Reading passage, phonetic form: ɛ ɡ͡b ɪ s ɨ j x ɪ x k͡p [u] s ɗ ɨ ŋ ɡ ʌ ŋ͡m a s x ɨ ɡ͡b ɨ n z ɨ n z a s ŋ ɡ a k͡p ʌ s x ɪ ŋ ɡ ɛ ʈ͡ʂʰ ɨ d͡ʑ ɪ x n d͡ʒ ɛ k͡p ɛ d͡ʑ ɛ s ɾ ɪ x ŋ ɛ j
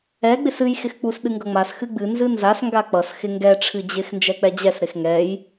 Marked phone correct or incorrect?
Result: correct